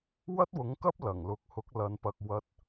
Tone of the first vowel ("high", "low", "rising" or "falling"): high